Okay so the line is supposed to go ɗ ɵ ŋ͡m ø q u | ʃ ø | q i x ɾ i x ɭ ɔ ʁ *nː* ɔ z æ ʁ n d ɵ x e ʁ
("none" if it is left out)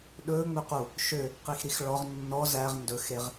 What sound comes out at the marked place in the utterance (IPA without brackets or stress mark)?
nː